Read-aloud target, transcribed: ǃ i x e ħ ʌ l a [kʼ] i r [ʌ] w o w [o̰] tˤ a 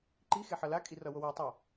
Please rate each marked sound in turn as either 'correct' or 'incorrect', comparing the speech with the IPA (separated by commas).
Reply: correct, correct, incorrect